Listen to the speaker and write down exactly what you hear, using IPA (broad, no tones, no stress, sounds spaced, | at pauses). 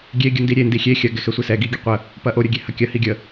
ɡʲ e ɡʲ ə n d i ɾʲ e n d i xʲ e xʲ ɐ ɡ ɛ x ɛ sʷ i s ɛ ɡ i ɡʲ ɛ qʷ ə | p ɐ ʔ o ɾʲ ə ɡʲ e h ɐ kʲ ɐ h i ɡʲ ə